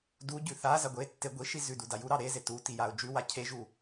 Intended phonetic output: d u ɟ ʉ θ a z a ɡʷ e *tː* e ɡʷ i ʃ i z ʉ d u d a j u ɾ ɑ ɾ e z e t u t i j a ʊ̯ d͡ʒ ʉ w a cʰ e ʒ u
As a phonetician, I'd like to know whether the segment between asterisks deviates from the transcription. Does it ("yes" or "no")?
no